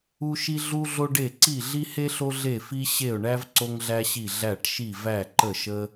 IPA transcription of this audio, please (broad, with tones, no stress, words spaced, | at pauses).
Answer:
u˧ʃi˧ ɮu˧ɮo˧ɖe˧˩ ǀi˧˩ɮi˧he˧ɬo˧ ɮe˧˩fi˧ ɕe˧˩ʊ̯ɳæ˧v ǀo˧ŋɮæ˧ɕi˧˩ ɮæ˧˩ʈʃi˧˩ væ˧˩ ǃə˧˩ʃə˧